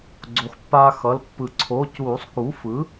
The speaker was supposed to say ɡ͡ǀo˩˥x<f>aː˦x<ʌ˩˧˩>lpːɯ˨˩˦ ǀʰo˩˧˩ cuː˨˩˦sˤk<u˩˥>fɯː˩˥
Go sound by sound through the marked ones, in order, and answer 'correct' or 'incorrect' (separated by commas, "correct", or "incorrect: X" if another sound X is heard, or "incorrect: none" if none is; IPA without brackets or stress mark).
incorrect: pː, correct, correct